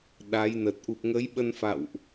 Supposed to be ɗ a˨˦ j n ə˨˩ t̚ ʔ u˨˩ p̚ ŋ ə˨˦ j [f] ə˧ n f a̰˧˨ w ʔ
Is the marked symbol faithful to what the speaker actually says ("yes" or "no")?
no